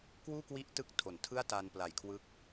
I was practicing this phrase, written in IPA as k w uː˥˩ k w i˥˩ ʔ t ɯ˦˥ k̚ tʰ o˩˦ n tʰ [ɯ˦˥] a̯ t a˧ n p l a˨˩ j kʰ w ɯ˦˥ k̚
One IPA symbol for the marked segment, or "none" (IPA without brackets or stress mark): ɯ˥˩